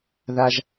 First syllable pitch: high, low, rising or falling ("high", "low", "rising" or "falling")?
high